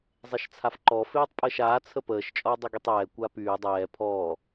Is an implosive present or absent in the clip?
absent